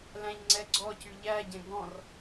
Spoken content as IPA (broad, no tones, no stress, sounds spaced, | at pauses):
l æ̃ ʎ ŋ͡ǀ ɛ ɡ͡ǀ ɔ c y ʎ æ ɟ ɛ̃ ɡ ɔ̃ r